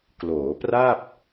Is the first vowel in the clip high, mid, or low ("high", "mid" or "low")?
mid